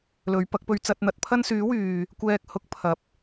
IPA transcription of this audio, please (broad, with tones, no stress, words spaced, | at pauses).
lɵ˨˧ɥpɐ˨˥k̚pɵ˧ɥ t͡sɐ˧t̚n̪ɐ˨˥t̚pʰɐ˥n syː˨˥wyː˨ | kʷɛː˧k̚ hʊ˧k̚pʰɐ˨˥p̚